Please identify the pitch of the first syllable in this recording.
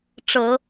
low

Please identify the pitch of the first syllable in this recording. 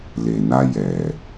low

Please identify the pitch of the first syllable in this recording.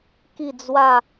falling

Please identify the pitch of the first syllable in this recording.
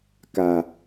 low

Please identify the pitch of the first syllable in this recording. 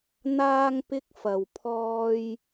high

